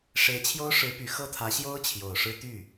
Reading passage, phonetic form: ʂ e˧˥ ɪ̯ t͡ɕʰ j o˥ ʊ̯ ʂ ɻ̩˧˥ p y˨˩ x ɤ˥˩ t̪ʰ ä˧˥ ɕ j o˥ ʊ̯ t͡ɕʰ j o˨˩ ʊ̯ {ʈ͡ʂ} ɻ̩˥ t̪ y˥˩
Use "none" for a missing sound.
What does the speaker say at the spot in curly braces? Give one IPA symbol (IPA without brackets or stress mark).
ʂ